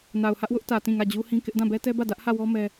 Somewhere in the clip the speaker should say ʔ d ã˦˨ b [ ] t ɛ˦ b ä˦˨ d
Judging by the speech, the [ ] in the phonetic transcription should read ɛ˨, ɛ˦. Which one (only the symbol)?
ɛ˦